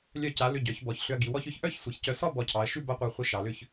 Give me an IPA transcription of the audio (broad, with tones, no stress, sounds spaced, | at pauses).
lʲ œ˧˩ c a˩˧ l ʏ˧˩ ɟ œ˩˧ ç b ɔ˩˧ ç ɬ ʏ˧ ɐ̯ ɡ i˩˧ w ɔ˧ ç ʏ˩˧ ç ʔ œ˥˧ ç sʷ i˩˧ ç c œ˧˩ s ɔ˥˧ b ɔ˧˩ cʰ ɑ˩˧ ɐ̯ ʃ ʉ˥˧ b a˥ qʷ a˧ χʷ i˧ ʃ ɑ˩˧ l ʏ˥˧ ç